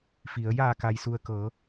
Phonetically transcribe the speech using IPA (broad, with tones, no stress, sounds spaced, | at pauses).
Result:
f i˩˧ ə̯ j aː˧˩ k a˩ j s u˩ ə̯ k ɤː˩˧